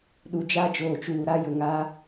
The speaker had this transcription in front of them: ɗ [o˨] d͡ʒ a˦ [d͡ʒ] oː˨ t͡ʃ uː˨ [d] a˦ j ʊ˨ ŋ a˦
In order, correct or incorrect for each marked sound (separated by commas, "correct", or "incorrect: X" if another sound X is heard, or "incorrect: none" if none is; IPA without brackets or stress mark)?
incorrect: u˨, correct, incorrect: ɾ